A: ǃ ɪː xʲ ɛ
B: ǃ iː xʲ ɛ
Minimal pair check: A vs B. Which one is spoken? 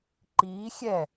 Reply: B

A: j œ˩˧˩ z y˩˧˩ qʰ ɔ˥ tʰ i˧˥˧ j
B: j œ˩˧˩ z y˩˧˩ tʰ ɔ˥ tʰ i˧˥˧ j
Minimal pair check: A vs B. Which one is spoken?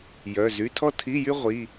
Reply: B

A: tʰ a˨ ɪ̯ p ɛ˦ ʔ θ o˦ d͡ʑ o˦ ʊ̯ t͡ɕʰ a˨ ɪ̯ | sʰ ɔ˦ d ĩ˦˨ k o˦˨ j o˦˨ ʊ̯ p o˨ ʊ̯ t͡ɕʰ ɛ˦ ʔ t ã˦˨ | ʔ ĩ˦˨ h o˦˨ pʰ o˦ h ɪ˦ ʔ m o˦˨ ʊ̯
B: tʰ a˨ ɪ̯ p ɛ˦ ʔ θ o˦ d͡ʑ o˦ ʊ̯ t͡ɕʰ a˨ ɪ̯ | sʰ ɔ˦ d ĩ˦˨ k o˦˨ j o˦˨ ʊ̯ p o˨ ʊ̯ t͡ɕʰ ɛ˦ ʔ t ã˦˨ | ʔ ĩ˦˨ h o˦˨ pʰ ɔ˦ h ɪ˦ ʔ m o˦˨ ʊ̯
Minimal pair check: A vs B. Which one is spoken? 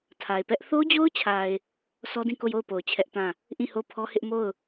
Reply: B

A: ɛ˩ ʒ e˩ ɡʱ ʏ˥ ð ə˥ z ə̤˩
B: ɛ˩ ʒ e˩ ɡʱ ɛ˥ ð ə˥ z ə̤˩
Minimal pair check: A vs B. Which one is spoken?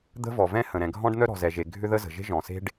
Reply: A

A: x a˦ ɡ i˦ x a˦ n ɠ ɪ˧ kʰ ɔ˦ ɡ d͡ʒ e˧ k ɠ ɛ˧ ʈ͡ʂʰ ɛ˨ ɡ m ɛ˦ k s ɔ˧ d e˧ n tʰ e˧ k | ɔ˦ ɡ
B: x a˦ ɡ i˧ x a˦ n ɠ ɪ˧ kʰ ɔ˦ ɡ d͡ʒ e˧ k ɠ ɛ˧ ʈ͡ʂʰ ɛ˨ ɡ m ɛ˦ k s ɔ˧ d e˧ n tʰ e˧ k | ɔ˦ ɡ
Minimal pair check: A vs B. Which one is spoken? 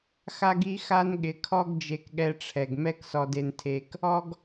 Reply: A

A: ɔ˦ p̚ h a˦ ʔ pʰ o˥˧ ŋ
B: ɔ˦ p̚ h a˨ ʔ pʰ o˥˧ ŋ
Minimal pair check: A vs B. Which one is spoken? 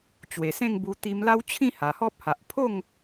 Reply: B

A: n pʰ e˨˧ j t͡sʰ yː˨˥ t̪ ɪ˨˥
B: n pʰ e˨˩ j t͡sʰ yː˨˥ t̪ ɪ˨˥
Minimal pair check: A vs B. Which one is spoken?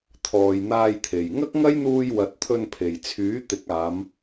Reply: B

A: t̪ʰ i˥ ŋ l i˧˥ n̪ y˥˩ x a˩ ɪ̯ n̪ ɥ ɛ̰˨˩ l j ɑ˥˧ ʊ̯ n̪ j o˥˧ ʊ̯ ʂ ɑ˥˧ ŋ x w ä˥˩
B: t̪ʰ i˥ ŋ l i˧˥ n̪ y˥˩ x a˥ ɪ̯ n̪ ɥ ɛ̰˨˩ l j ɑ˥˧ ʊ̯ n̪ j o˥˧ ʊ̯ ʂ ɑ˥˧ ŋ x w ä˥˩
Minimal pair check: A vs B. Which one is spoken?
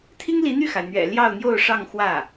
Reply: A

